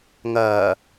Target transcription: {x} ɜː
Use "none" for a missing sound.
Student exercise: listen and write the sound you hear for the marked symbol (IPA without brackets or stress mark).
ŋ